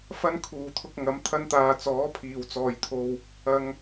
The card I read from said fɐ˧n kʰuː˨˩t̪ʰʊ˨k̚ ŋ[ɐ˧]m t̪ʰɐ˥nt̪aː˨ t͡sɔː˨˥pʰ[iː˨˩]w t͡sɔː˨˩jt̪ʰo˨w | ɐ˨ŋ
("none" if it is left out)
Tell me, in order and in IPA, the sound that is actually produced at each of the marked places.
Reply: ɐ˨˥, iː˨˩

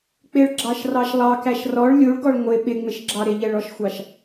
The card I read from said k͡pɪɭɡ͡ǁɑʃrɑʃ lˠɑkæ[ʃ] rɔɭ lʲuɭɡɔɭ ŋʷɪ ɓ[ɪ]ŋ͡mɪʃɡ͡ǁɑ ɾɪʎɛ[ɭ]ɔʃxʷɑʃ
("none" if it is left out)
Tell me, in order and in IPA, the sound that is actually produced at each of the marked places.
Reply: ʃ, ɪ, ɭ

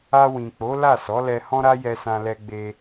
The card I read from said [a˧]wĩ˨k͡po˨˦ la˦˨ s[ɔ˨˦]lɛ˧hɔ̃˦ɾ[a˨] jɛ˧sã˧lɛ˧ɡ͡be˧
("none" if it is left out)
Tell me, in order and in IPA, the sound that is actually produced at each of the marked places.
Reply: a˧, ɔ˨˦, a˦

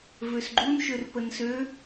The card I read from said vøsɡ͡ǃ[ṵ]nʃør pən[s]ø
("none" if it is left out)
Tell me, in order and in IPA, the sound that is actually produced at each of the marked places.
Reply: u, s

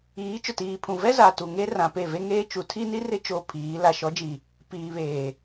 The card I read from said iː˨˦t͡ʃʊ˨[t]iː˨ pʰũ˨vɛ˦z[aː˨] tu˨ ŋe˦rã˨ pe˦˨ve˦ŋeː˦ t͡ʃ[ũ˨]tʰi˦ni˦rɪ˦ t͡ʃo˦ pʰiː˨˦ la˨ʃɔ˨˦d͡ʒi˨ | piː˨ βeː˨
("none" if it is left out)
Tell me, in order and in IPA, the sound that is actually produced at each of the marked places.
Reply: t, aː˨, u˨

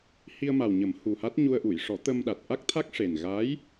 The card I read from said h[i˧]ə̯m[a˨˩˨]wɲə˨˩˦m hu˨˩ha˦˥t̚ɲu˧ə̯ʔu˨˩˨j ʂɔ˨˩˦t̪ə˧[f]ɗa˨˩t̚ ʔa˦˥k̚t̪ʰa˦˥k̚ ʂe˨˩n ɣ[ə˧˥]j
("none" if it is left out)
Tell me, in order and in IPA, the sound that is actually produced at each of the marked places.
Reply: i˧, a˨˩, m, a˧˥

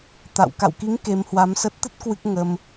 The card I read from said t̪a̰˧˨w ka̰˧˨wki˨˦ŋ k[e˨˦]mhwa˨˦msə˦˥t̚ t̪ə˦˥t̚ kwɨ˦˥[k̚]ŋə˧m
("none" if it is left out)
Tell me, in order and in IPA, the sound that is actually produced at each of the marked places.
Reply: e˨˦, k̚

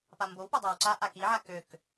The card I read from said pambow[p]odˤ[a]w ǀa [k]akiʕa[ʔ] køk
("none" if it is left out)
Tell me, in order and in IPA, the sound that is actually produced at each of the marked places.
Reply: p, a, ʔ, none

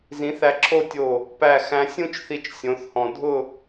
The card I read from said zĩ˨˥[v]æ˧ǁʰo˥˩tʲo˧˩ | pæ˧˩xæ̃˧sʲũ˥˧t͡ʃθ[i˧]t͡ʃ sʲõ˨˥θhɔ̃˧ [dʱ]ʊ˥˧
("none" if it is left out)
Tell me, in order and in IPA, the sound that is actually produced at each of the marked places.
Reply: θ, i˧, dʱ

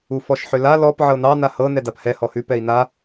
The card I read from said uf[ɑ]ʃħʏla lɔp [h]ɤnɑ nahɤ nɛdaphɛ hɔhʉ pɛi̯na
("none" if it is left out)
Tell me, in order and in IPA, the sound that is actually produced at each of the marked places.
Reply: ɔ, ʕ

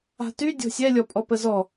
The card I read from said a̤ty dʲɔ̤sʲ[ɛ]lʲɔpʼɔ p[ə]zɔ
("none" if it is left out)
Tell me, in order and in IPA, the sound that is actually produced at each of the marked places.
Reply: ɛ, ə

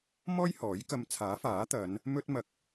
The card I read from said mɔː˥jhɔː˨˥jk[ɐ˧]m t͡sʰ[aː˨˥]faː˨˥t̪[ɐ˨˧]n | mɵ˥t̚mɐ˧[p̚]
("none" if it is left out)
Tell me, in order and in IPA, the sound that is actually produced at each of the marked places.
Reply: ɐ˧, aː˨˥, ɐ˨˧, k̚

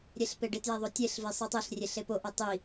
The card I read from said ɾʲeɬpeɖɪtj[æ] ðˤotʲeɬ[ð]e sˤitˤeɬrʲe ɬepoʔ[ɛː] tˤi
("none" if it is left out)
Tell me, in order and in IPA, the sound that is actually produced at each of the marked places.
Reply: ɛ, v, ɛ

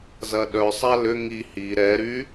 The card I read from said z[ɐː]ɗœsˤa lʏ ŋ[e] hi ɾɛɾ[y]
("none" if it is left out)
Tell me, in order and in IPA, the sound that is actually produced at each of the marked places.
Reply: ɐ, i, y

